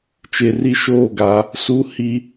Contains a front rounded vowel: no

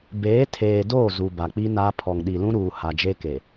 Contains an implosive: yes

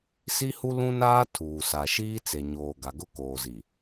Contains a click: no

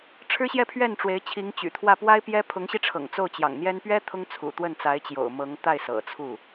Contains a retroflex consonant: yes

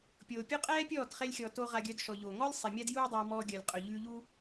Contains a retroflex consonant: no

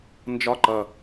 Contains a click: yes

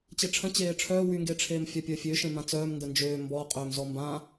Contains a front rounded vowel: yes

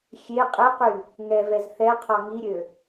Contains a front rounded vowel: yes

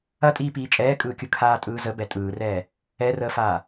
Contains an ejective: yes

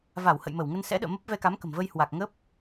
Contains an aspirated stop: no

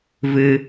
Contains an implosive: no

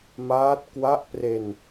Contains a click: no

